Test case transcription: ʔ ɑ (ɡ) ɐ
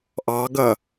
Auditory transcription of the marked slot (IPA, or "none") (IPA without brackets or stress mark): ɡ